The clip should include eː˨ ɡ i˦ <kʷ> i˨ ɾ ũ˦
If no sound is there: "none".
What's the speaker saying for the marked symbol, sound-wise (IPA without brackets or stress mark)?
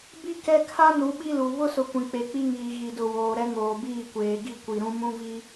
kʷ